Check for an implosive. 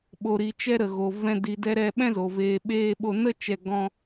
present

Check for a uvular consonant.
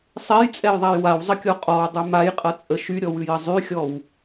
present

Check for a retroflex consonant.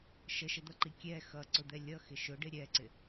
present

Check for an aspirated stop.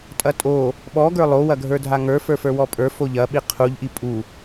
present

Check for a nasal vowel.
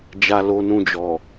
present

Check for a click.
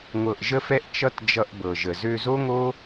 absent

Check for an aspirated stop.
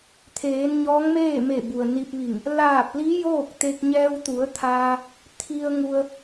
present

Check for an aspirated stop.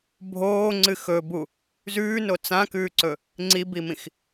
absent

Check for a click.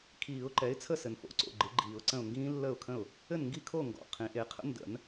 present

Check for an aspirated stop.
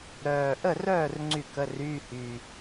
absent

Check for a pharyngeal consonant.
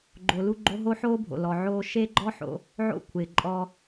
present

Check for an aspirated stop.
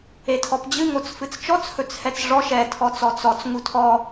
present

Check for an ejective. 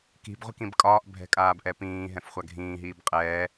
present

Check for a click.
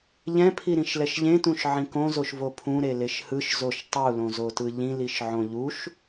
absent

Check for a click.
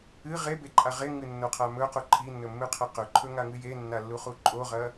present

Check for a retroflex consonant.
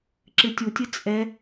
absent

